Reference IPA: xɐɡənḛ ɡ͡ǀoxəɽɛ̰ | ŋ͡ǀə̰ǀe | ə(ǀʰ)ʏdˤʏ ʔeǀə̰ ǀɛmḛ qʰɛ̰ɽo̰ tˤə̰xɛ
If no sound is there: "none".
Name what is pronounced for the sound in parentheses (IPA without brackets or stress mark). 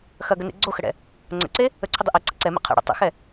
ǀʰ